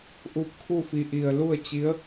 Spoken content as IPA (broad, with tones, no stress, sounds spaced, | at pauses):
ʔ u˧ p̚ kʰ u˥˨ f i˧˩ ʔ i˧˩ ə̯ l u˥˨ ə̯ t͡ɕ i˧˥ ə̯